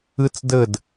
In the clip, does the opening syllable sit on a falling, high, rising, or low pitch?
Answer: high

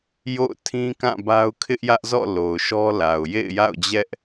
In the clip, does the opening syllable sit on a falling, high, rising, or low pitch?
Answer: falling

